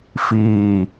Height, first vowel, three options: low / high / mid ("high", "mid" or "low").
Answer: high